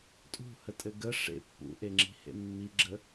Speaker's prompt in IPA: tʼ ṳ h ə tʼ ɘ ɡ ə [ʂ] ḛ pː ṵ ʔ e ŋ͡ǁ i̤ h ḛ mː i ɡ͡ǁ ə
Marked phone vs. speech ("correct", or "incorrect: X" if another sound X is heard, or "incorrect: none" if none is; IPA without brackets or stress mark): correct